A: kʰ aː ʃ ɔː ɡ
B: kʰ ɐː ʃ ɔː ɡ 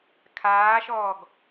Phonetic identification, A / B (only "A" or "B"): A